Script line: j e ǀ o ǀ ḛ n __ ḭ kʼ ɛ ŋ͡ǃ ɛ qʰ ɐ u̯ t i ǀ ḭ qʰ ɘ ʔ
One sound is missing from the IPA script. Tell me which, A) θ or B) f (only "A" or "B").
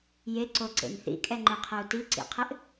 A